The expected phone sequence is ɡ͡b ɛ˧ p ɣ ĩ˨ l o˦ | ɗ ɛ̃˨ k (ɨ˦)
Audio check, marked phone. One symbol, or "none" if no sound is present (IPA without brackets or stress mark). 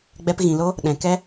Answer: ɛ˦